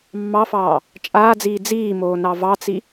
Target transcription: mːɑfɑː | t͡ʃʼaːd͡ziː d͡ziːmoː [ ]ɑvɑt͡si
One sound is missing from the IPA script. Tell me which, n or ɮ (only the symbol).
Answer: n